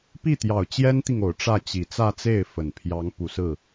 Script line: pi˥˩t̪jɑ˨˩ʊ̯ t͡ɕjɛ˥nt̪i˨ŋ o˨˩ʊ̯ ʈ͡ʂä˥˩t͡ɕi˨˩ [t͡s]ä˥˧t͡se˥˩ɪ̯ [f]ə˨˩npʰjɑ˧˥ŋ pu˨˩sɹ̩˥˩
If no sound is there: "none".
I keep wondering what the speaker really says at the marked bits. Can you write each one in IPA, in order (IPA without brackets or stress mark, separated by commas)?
t͡s, f